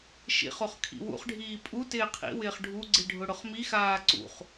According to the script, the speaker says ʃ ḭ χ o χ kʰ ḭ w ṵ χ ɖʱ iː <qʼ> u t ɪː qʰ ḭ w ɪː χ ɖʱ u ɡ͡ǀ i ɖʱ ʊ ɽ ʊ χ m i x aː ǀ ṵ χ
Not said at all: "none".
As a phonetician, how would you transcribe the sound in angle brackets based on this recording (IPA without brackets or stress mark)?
pʼ